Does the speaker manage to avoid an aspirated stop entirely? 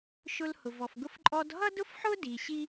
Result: yes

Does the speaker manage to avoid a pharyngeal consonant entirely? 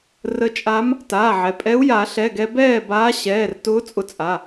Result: no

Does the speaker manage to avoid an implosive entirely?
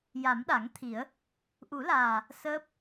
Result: no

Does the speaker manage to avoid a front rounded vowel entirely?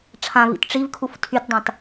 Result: no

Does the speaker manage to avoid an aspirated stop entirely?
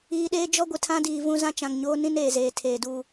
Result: no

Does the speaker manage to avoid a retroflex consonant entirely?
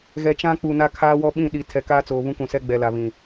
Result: yes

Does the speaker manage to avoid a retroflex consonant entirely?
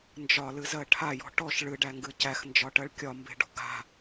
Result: no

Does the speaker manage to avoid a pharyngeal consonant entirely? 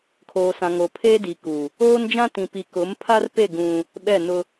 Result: yes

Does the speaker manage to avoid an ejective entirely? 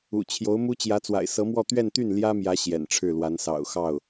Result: yes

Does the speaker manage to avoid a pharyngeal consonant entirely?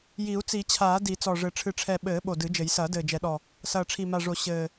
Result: yes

